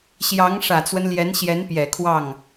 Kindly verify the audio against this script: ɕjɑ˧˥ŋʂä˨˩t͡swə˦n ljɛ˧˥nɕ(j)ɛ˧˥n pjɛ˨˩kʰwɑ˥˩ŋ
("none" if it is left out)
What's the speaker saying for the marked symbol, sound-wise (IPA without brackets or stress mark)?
j